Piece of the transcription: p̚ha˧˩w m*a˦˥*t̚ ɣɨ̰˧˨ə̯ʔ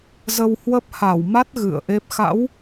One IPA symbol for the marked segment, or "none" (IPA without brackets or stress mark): a˦˥